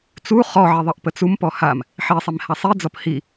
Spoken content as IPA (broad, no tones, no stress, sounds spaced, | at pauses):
t͡s u χ ɔ ʕ i ðˤ ə ʔ p ə t͡s u m p ɔ h a m | ħ i sˤ i m h a sˤ i d͡z ɔ p h i